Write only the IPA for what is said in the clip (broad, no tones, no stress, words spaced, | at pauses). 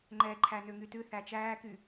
ŋ͡ǃɛ ǃʰænøŋytʉ θæt͡ʃæːky